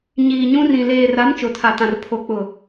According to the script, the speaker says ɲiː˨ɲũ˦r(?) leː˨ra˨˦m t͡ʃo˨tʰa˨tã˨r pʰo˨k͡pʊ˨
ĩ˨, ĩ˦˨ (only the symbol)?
ĩ˨